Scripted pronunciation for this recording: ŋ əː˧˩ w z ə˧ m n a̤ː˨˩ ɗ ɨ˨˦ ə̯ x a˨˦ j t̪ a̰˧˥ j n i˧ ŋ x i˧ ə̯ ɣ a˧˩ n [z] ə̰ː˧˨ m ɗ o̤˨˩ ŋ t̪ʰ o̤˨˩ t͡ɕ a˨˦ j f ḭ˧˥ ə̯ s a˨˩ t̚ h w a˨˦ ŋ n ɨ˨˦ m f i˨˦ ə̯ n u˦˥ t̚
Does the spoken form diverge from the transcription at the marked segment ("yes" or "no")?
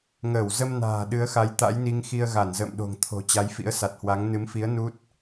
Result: no